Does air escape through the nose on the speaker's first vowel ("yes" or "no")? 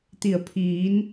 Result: no